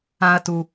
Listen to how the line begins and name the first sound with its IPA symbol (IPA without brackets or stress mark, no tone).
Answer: ã